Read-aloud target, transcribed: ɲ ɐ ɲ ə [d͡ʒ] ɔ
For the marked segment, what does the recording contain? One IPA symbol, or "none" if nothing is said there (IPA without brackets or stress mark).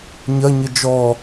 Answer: d͡ʒ